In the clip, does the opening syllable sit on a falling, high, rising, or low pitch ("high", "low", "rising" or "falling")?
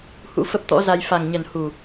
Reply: rising